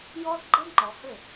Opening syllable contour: high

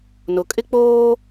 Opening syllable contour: low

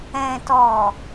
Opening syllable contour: low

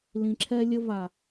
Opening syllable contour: low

